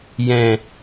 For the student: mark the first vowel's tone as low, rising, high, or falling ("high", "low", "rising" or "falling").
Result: low